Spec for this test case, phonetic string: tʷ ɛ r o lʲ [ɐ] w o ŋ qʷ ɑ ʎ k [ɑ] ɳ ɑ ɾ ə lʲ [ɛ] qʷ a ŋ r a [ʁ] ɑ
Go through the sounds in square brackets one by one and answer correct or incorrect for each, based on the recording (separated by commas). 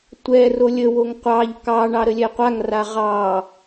incorrect, correct, correct, correct